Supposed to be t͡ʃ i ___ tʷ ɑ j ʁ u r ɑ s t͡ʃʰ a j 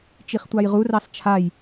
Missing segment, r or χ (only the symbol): χ